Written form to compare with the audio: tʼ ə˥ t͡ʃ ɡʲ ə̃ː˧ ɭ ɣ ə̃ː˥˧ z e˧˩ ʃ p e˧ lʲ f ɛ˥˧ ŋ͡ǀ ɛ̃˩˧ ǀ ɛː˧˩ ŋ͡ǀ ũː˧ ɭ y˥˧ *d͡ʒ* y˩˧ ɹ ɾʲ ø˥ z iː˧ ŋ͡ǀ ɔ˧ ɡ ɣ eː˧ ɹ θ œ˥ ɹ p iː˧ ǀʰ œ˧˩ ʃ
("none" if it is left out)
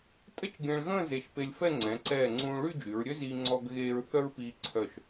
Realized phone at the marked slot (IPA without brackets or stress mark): d͡ʒ